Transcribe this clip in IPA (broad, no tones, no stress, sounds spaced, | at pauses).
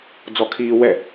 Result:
d͡z ɔ kʰ iː w ɛ